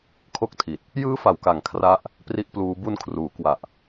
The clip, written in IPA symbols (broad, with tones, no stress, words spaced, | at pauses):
kʰo˥˩k̚tʰi˨˩t̚ | jɯː˦˥fa˩˦wka˨˩ŋ kʰra˥˩ʔ | pri˥˩ʔpluː˦˥ bu˧nkʰruː˩˦ kwa˨˩ʔ